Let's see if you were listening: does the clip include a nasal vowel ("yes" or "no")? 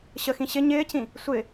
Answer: yes